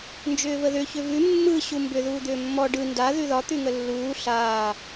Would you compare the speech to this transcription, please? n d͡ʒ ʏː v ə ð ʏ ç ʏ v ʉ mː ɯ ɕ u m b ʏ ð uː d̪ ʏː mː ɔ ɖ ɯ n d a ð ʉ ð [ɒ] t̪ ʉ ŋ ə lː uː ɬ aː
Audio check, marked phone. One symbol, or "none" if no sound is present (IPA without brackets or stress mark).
ɒ